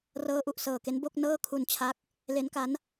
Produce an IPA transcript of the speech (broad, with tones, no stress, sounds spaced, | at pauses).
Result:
r ɤː˦˥ ʔ u˨˩ ʔ s ɤː˨˩ k e˦˥ n b o˥˩ k̚ n ɤː˥˩ kʰ u˧ n t͡ɕʰ a˦˥ k̚ | l e˦˥ n k a˦˥ n